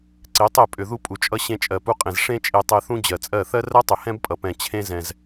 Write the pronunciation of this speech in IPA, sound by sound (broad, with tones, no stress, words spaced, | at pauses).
ǀe˨˦tˤe˦˨ pʼʏ˨ ðu˦pʼu˨t͡ʃʼʌ˦ ɕẽ˧t͡ʃʼɜ˨pu˧qʼẽ˨z ʂẽ˦ t͡ʃʼe˧ tˤe˧θũ˦ d͡ʑɜ˨t͡sʼɜ˦˨ θɜ˦rɜ˦tˤʏ˨ hɛ̃˦bpʼʌ˨pɛ̃˨ t͡ɕʰẽ˦ zɛ̃˨z